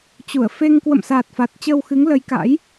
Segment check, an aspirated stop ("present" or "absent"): absent